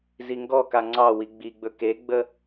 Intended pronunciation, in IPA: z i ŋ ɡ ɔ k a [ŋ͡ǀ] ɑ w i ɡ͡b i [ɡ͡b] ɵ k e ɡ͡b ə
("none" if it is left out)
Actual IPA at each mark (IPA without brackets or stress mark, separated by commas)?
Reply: ŋ͡ǀ, ɡ͡b